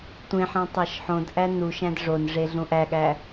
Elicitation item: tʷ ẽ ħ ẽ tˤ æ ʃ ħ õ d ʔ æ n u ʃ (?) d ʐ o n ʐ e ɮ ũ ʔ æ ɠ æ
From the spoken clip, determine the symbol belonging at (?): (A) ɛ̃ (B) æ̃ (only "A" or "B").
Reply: B